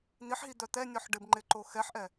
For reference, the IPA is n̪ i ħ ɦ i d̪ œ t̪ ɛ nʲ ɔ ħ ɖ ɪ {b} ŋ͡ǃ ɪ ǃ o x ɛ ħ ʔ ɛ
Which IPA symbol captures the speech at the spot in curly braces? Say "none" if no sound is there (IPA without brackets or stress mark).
b